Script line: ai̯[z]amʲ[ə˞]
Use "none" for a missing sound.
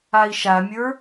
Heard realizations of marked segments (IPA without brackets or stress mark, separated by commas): ʃ, ə˞